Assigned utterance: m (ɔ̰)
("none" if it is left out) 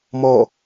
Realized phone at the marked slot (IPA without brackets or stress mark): ɔ